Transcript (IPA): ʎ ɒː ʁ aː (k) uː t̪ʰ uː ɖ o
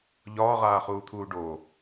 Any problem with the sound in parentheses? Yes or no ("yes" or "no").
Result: yes